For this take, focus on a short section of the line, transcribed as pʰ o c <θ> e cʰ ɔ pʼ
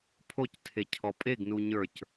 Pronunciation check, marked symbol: incorrect: tʰ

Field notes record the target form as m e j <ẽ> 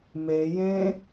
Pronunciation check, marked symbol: correct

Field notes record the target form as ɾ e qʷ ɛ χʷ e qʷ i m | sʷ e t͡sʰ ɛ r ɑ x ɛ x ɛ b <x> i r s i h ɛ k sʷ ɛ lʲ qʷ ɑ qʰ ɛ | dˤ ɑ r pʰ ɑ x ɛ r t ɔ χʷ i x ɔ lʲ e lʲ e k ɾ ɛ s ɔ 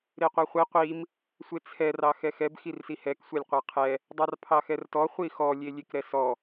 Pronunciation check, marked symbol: correct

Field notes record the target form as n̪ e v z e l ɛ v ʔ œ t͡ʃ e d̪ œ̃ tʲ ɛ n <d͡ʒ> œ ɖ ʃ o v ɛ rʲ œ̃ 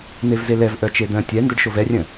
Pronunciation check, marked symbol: incorrect: d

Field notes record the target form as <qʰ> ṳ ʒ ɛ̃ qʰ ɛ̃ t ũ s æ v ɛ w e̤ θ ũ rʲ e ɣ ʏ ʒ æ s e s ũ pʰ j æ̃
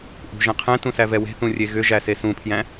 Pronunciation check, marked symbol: incorrect: ʔ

